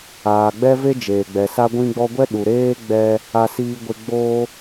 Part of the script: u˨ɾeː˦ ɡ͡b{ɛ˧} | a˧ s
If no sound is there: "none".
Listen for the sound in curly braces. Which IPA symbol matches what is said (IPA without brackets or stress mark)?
ɛ˦